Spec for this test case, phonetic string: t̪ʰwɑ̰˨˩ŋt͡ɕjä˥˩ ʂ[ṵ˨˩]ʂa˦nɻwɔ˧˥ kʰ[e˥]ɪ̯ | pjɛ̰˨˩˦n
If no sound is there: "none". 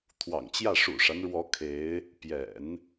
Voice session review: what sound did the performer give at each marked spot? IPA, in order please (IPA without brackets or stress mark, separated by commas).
ṵ˨˩, e˧˥